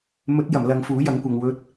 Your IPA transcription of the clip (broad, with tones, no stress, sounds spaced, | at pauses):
m ɵ˨˥ t̚ j ɐ˨˩ m l ɐ˨˧ ŋ f uː˨˥ j ɐ˨˥ ŋ kʷ ɐ˨ ŋ w ɵ˧ t̚